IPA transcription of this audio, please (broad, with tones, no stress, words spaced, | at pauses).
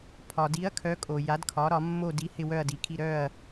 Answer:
pʰɒ˨di˨˥ɐ̯kʰœ˨˥kʼo˨ ja˨˥dkʰɒ˨˥ ɾɒ˨˥mːo˥˧ di˨˥ hɪ˥˧wœ˥˧ɐ̯di˨˥kʰi˥˧ ɾœ˥˧ɐ̯